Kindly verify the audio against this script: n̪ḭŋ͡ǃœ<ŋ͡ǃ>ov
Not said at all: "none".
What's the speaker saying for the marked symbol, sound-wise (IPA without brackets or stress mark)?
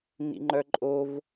ǃʼ